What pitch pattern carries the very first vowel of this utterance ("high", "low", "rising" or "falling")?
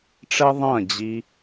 high